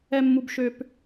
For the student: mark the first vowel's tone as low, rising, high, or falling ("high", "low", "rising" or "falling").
high